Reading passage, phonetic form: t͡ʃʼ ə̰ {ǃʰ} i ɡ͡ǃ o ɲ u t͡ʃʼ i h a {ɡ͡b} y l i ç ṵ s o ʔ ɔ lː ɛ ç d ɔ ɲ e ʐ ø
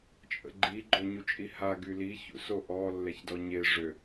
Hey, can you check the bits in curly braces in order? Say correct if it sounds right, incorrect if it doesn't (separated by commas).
incorrect, incorrect